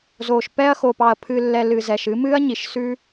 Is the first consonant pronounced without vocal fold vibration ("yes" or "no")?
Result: no